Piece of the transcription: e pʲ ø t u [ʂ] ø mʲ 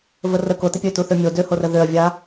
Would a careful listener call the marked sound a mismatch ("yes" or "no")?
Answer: yes